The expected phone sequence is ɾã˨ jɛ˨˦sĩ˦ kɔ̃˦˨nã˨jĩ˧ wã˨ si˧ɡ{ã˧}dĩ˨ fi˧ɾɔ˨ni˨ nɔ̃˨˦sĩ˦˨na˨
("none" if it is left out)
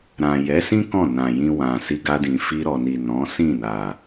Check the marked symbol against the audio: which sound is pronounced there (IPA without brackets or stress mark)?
a˧